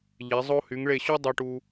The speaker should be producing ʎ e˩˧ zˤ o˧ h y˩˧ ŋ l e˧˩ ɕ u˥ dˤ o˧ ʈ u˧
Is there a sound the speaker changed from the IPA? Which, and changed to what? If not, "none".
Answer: l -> ɭ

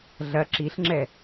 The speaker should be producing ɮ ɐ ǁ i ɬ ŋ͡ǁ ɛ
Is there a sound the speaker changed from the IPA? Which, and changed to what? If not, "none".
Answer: none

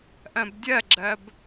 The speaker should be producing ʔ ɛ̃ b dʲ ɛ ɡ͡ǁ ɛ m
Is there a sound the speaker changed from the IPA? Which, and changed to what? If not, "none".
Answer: m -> b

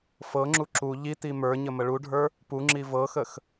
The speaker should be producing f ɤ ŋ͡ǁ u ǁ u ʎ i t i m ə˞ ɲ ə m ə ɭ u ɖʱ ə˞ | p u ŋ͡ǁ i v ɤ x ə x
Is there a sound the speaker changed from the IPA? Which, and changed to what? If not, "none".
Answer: none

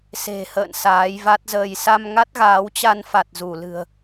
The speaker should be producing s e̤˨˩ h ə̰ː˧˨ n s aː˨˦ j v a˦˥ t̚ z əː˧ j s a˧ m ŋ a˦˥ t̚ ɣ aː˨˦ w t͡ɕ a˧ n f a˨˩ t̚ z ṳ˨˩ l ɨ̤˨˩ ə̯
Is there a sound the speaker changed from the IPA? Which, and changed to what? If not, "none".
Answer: ṳ˨˩ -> u˧˩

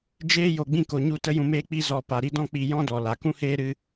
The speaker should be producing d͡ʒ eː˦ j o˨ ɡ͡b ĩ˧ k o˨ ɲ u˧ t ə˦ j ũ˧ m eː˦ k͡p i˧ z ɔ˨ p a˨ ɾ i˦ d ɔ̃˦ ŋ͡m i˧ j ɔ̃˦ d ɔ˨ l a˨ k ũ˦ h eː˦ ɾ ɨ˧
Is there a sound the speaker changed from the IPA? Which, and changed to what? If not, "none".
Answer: ŋ͡m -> k͡p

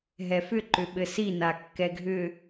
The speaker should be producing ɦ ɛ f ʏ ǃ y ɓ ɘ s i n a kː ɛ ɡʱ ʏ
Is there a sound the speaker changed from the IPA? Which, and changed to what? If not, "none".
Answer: y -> ʏ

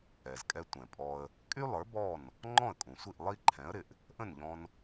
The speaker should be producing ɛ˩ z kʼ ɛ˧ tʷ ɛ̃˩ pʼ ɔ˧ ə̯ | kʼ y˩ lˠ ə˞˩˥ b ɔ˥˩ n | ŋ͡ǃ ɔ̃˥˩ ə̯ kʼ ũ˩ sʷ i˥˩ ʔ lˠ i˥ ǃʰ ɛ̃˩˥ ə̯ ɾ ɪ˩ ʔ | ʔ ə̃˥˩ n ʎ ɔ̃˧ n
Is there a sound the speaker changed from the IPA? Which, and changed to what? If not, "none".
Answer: y˩ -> y˥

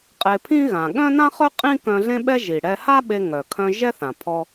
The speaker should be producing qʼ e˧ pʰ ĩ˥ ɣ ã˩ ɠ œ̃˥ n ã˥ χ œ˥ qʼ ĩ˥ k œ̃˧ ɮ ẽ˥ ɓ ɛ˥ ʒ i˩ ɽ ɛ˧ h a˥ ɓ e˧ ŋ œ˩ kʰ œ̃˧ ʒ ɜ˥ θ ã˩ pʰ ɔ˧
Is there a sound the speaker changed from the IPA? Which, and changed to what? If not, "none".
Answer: ɜ˥ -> ɛ˥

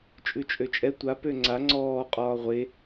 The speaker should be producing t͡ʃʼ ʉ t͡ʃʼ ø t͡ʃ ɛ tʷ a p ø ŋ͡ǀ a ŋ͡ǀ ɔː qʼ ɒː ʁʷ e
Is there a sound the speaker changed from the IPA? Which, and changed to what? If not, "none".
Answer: t͡ʃ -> t͡ʃʼ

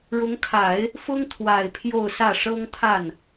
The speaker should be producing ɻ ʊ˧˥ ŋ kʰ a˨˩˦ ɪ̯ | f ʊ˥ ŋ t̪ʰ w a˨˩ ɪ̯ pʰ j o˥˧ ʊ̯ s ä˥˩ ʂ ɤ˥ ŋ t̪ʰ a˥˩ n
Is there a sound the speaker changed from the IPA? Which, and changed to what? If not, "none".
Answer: none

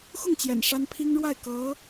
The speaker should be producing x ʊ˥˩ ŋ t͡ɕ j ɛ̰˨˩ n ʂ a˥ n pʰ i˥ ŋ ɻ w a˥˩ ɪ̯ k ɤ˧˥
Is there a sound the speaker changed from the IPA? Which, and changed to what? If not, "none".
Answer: none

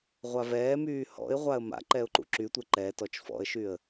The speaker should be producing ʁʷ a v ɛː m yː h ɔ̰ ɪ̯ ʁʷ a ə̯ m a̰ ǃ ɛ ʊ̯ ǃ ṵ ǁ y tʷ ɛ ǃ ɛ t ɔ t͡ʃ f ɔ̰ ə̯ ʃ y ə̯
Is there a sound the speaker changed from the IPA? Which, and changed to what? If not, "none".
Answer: none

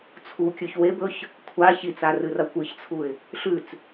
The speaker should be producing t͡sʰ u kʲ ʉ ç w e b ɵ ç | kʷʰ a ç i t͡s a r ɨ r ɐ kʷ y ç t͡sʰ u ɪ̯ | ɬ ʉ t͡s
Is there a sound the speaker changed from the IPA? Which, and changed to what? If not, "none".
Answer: y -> ɨ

